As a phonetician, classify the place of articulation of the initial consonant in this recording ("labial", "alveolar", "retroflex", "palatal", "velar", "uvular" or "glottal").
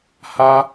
glottal